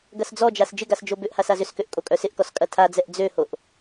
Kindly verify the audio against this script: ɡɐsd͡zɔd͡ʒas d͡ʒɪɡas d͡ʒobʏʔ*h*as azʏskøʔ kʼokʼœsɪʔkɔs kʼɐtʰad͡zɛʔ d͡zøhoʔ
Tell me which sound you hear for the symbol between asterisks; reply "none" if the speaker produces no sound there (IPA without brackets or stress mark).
h